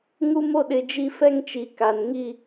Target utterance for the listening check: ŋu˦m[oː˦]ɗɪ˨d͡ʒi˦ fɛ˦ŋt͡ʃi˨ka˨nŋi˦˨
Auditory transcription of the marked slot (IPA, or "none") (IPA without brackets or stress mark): o˦